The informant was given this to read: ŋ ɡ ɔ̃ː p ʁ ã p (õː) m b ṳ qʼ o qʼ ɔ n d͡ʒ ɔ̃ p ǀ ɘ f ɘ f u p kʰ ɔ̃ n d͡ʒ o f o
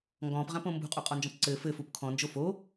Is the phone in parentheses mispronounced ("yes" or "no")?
yes